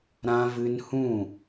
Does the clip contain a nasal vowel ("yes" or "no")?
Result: yes